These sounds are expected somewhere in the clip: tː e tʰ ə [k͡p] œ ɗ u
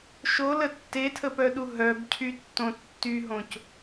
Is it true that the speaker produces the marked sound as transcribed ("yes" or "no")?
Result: no